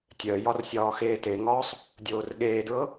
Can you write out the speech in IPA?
tʲ œ j ɒ r sʲ ɒː x eː t e ŋ ɒː sˤ | dʲ oː r ɠ eː d ɹ ɤ

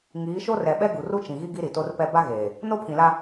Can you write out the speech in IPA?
ŋ iː˨˦ ʃ o˦ r ɛ˨ ɓ ɛ˦ ɡ u˨ r u˦ t͡ʃ ĩ˨ ɣ i˦ ɡ i˦ ɾ i˨ t o˦ r p ɛ˦ b a˦ ɣ eː˨ | n o˦ pʰ ĩ˨ l a˦

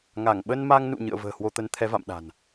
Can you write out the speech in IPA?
ŋ a˧˩ ŋ ɓ ə˧ n m a˧ ŋ n ṵ˧˨ ɲ ɨ̰˧˨ ə̯ v ə̤ː˨˩ h w o˧ t̪ ə˨˦ n t̪ʰ ɛ˨˦ v a̰˧˨ m ɗ a̤˨˩ n

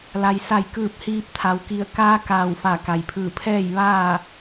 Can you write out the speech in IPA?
l a˩ j s a˧˩ j k ɯː˧˩ p̚ h iː˧ p̚ t̪ʰ a˩˧ w k i˧˩ ə̯ k aː˧˥ k aː˧˩ w f a˧˩ k a˩ j pʰ ɯː˧˩ pʰ ɛː˥˨ j ʋ aː˥˨

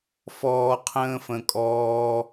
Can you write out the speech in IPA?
f ɔː˧ qʰ ə̃ː˦ f ə̃˧ kʼ ɔː˦

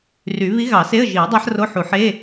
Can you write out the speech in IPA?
r y˨˩˦ β i˧˥ ɣ ɑ˨˩˦ s e˧˥˧ ə̯ ʒ i˨˩˦ ə̯ dˤ æ˧˥ ħ r o˧˥˧ ħ u˨˩˦ ħ e˧˥˧

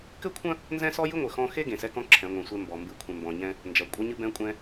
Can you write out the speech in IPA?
k ɘ˦ kʷʰ ɐ̃˦ | n z ɛ̃˦ s ɔ˦ j ɨ˦ ŋʷ ɘ˨ x ɔ̃˦ x e˦ ɡ ẽ˨ s ɛ˦ k ɔ̃˦ ǁʰ ɛ̃˨˦ ŋʷ ɛ̃˨ sʷ ɛ˦ m b ɔ˨ m b ɨ˦˨ kʷʰ ɛ̃˨ m b ɔ̃˨ ɲ ɛ̃˦ | n d͡ʒ ɐ˨ kʷʼ ɐ˦ ɲ ɨ˦ b ɛ̃˦ kʷʼ ɛ̃˦

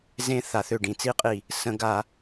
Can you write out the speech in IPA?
z ẽ˦˥ θ a˨˩˦ θ ø˧˩ ɖ ĩ˧˩ t͡s i˦˥ qʼ i˧˩ | s ə̃˨˩˦ ɡ a˨˩˦

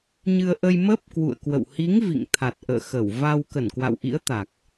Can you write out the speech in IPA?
ɲ ɨ˧ ə̯ ʔ ə˧ j m ə˦˥ p̚ k w ṵ˧˨ ə̯ k w ə̰˧˨ w h i˨˦ ŋ v ḭ˧˨ ŋ t̪ʰ a˨˩ t̚ ʔ ə̰ː˧˨ x ə˧˩ w v a˧ w k ə˧˩ n k w a̰˧˨ w ʔ ḭ˧˥ ə̯ t̪ a˨˩ k̚

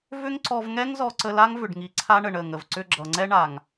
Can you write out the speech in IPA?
v ʏ˦ ŋ ǀ ɔ˧ v ŋ ɛ˦ ŋ z ɔ˧ ǀ ə˧ l a˦ ŋ v ʏ˨ ɖ ŋ i˨ ǀʰ a˦ ɳ ə˨ ɳ ə˦˨ ŋ ə˨ v ǀ ʏ˧ ɡ͡ǁ ʌ˨ ŋ͡ǀ ɛ˦ ɳ a˨ ŋ

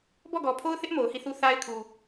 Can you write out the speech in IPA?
b ɔ˦˨ ɡ ɔ˨ pʰ o˦ ʊ̯ θ ɪ˦ ʔ m o˨ ʊ̯ h i˦˨ θ u˦ θ a˦ ɪ̯ kʰ u˨

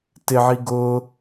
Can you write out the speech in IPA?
t ɪ ʕ i ɡ ʊ

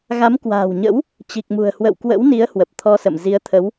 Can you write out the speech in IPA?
ɣ a˨˦ m k w a̤ː˨˩ w ɲ ə̰˧˥ w | t͡ɕ i˨˩ k̚ m ṳ˨˩ ə̯ h w ə̰˧˨ w k w ə̰˧˥ w n i˨˦ ə̯ h w ə˨˩ p̚ t̪ʰ ɔ˧ s ə̰˧˨ m z i˨˦ ə̯ t̪ʰ ə˨˦ w

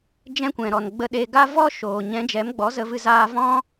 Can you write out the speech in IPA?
d͡ʒ ɛ̃˧ kʷ ɛ̃˨ ɾ ɔ˨ n ɡ͡b ə˧ ɗ e˧ ɡ a˦ v ɔ˦ ʃ oː˨ ɲ ɛ̃˨˦ d͡ʒ ɛ˨˦ m ɡ͡b ɔ˨˦ z ə˧ v ɨ˧ z aː˧ v ɔ̃˦

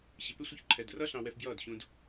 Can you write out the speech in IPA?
ɕ ɪ˨ p ɪ˦ sʷ ɪ˧ ç ǃʰ ɛ˨ d r ʌ˦ ɬ ɑ̃˧ w ɛ˧ f b j ʌː˦˨ d ɕ ũ˧ d

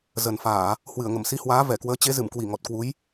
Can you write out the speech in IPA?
z ə˨˩ n f aː˧˩˨ | h w ɨ˧˩ ə̯ ŋ ə˧˩ m s i˨˦ h w aː˨˦ v ɛ˧˩ k w əː˨˦ t͡ɕ e˨˦ z ɨ˧˩ m k w i˧˩ ŋ ɔ˨˩ t̚ k w u˨˦ j

